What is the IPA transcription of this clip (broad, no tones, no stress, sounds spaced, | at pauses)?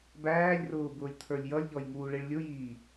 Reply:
b æː lʲ r ʊː b ʊː lʲ t̪ʰ ə˞ lʲ j ʌ lʲ ʎ ɔ j ŋ uː ɭ i ɭ lʲ ʊ j iː